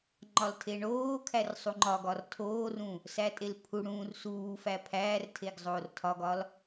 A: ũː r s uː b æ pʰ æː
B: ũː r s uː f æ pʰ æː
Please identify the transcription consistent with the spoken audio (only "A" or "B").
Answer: B